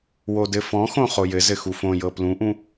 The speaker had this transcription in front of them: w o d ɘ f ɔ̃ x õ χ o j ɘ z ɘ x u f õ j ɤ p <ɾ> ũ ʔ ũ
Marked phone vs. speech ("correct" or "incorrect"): incorrect